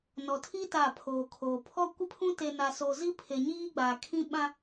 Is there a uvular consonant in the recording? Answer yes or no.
no